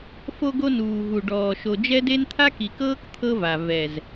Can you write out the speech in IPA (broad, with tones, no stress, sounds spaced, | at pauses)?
f o˧ ɡ o˧ n uː˨ v u˨ ɖ ɔː˨ ʃ o˨ d͡ʒ ɛ˦ d e˦ n t̪ʰ a˦ k i˨ k ɤː˦ k t̪ʰ ɤ˦ v a˨ v ɛ˨ z